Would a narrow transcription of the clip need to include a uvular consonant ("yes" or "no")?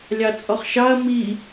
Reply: yes